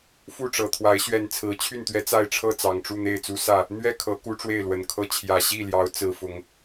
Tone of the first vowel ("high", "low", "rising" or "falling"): falling